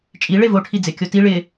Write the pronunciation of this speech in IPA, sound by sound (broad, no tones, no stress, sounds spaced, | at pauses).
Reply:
t͡ʃʼ i ɭ e v o ʈʰ i d͡z ɪ kʲ o t i ɭ ɪ